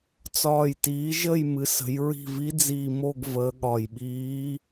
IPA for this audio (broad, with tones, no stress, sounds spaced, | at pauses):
t͡s ɒː˨˩ j t iː˩˧ ʒ ə˦˨ j m ɨ˩˧ s ə̤˩˧ j ɹ i̤˦˨ v i˧˥ d͡z iː˨˩ m o˦˨ ɡ v əː˩˧ ɠ ɒ˨˩ j ɓ iː˧˥